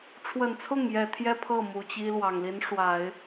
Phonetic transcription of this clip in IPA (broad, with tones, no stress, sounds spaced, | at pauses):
ʈ͡ʂʰ w ə˨˩ n t͡sʰ ʊ˥˩ ŋ j ɛ˨˩ t̪ʰ j ɛ˥˧ pʰ ɤ˥˩ m u˨˩ t͡ɕ i˥ l w ɑ˨˩ ŋ l i˧˥ n ʂ w a˨˩˦ ɪ̯